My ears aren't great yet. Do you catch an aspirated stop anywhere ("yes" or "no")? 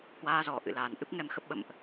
no